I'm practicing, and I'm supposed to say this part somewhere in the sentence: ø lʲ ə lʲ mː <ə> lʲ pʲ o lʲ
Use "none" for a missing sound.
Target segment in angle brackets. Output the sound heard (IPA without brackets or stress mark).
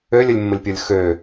ə